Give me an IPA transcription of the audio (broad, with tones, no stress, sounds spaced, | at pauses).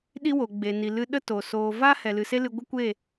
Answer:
ɗ i˦ w o˨ ɡ͡b e˨ n i˨ l ɨ˧ ɗ ə˦ t o˨ s oː˨ v a˦ h ɛ˨ l ɨ˨ s e˦ l ɨ˧ ɡʷ ə˦ kʷ e˦˨